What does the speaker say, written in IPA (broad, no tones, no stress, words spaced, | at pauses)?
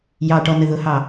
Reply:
jɑʈɔ nəðʊhɑ